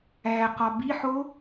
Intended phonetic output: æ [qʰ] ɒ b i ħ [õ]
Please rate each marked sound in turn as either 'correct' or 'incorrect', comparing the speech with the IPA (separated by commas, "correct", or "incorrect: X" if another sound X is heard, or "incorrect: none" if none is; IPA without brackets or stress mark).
incorrect: q, incorrect: o